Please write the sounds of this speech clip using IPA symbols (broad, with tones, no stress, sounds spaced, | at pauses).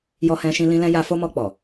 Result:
j ɔ˧ h ɛ̃˧ ʃ ĩ˧ l ĩ˧ l ɛ̃˧ j a˧ f o˧ m ɔ˧ k͡p ɔ˨